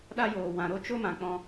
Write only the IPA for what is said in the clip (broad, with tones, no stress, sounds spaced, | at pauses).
ɗ a˦ j oː˨ w ã˨ ɾ o˦ t͡ʃ o˦ m ã˨ k͡p ɔ̃˧